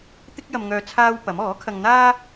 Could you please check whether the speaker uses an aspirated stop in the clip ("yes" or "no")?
yes